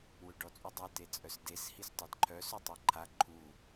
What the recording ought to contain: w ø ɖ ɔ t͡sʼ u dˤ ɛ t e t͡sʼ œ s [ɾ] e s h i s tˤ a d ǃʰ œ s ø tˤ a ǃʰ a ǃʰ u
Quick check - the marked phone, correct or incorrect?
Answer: incorrect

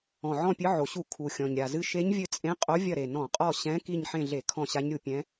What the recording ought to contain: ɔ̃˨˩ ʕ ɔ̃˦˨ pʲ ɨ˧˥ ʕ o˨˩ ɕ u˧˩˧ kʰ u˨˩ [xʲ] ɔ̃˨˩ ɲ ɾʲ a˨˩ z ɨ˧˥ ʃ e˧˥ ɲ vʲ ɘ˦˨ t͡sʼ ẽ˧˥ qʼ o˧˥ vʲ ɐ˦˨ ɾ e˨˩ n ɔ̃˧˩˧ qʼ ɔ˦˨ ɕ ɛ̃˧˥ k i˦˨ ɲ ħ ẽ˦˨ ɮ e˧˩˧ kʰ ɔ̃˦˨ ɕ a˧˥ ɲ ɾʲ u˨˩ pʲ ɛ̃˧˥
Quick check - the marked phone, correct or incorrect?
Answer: correct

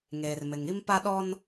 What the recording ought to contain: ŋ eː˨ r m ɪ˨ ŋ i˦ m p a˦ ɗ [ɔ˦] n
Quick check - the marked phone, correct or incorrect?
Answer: correct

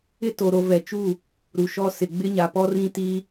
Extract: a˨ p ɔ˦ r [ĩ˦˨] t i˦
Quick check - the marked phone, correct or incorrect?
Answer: incorrect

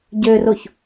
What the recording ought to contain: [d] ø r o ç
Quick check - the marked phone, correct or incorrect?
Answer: incorrect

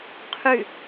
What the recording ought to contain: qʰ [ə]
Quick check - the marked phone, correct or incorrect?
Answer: incorrect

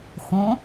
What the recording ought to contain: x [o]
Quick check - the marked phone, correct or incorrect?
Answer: incorrect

